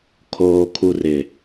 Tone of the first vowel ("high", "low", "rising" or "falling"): low